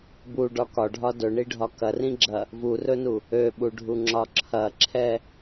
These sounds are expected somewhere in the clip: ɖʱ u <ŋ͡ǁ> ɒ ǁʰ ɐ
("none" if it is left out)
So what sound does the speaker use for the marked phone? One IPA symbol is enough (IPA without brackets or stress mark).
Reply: ŋ͡ǁ